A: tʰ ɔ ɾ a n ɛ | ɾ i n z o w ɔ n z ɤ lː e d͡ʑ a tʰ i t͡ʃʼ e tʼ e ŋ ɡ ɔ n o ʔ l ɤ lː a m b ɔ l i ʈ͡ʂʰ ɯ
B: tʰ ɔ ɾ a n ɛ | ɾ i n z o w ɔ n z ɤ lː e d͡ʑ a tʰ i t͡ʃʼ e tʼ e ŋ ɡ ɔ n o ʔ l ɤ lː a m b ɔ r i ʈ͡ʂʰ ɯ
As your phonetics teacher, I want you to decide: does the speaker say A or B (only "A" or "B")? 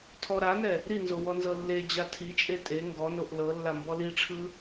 A